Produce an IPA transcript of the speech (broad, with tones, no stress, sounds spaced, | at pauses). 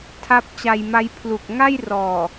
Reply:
tʰ a˦˥ p̚ t͡ɕ a˧ j m a˦˥ j pʰ l u˨˩ k̚ ŋ a˥˩ j r ɔː˨˩